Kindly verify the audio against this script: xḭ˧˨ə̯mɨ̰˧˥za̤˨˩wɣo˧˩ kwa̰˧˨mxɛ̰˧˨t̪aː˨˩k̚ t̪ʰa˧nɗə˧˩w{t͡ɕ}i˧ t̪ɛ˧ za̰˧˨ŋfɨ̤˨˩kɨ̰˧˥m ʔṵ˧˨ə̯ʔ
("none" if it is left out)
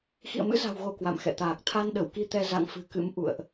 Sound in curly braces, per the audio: k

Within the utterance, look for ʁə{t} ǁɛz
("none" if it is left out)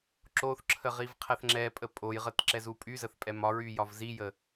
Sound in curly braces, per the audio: t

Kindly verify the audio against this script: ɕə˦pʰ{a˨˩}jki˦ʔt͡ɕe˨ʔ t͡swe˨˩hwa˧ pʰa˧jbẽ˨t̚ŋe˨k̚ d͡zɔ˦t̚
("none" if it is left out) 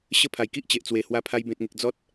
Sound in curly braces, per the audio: a˨˩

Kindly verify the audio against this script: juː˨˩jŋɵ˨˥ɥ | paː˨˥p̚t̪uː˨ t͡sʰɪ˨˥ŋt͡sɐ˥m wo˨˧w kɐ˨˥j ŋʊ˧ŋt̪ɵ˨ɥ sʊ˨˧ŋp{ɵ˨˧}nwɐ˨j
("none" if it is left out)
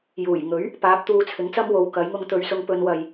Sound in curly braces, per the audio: ɵ˨˧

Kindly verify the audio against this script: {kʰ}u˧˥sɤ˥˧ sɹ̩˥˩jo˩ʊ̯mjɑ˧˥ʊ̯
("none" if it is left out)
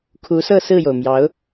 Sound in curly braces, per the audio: kʰ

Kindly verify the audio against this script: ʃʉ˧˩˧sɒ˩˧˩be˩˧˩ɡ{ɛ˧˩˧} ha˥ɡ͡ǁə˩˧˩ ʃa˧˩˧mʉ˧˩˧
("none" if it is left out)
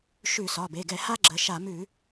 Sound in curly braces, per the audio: ɛ˧˩˧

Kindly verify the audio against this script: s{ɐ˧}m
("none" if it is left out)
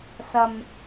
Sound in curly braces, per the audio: ɐ˧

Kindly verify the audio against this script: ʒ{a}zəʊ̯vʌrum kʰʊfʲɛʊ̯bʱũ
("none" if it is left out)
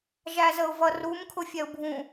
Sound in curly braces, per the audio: æ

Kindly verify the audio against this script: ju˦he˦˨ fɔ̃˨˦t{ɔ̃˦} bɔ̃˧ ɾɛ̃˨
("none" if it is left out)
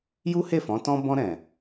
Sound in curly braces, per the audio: ɔ̃˦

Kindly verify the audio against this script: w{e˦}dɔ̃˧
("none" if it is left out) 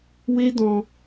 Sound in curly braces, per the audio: e˦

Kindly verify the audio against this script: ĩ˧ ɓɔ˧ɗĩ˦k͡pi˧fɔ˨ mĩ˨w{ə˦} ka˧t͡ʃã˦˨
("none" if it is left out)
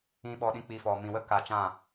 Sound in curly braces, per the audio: ə˦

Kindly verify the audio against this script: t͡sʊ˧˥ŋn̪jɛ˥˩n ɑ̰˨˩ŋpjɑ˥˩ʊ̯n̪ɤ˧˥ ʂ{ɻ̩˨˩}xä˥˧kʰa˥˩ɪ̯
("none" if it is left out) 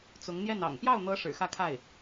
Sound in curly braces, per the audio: ɻ̩˨˩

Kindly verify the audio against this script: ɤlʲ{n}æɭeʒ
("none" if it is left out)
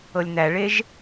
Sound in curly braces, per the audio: n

